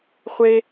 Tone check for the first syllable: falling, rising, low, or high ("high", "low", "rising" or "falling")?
high